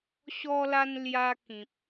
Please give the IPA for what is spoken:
ɕ ɔ˧ l a˧ n l j a˧ k ĩ˨ p̚

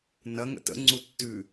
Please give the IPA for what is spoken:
n ɐ ŋ ə̰ t ə̰ ŋ͡ǀ u tː ʉ

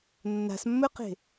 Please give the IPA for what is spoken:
nː a̤ s mː ɵ q e̤

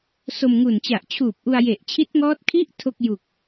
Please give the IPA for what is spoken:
s o˧ m ŋ u˨˩ n t͡ɕ a˨˩ ʔ t͡ɕʰ uː˨˩ p̚ ʔ u˧ a̯ j e˨˩ ʔ t͡ɕʰ i˦˥ t̚ ŋ ɔː˦˥ t̚ kʰ i˦˥ ʔ tʰ o˥˩ k̚ j u˨˩ k̚

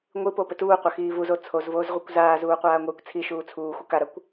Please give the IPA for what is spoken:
ŋʷ ɨ p o p ɘ t uː qʷ ɐ x iː v u z o t͡sʰ o z v oː z ʁʷ ɨ kʷ z aː z uː qʷ aː ŋʷ ɘː kʷ t͡sʰ i ʃ uː t͡sʰ uː xʷ ɐ k a ɾ a kʷ

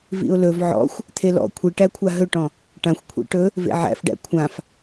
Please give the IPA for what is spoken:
v ḭ ʊ̯ l ɵ v ʕ ɔ̰ xʷ | t̪ʰ e l ɔ̰ kʷʰ i ʈ æ kʷʰ a ɦ ɵ ʈ ɔ̃ | ʈ ã xʷ kʷʰ ḛ ʈ ɵ | v ḛ ʕ æ̰ f ɖ æ̰ kʷʰ ã f

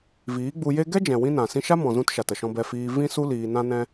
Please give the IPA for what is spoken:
v iː˨˦ ɡ͡b u˧ j e˦ ɡ ɛ˦ d͡ʒ ɛ̃˨ w ĩ˧ n ã˨ s ĩ˧ ʃ a˦ m ɔ̃˨ z ũ˧ t ʃ a˨ t ə˨ ʃ ɔ̃˧ b ɛ˧ f iː˧ v ĩ˦ s u˦ l iː˧ n ã˦ n ɛ̃˦

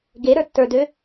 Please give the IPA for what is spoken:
ɡ e ɾ ə˞ tː ə˞ d ø

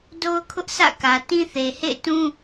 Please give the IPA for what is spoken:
d o˦ ʊ̯ kʰ ʊ˦ ʔ sʰ ä̰˦˨ k ä˨ t ĩ˦ θ e˨ h ḛ˦˨ ɪ̯ t ũ˦

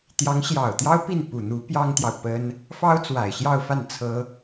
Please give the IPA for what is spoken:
t̪ j ɑ˧˥ ŋ ɕ j ɑ˨˩ ʊ̯ t̪ j ɑ˥ ʊ̯ p i˥˩ n p u˨˩ n̪ u˧˥ p j ɑ˥ ŋ t̪ j ɑ˨ ʊ̯ p ə˥ n | f ɑ˥ ʊ̯ t͡s w a˨˩ ɪ̯ ɕ j ɑ˥˧ ʊ̯ f a˥˩ n t͡sʰ ɤ˥

